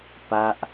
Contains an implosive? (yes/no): no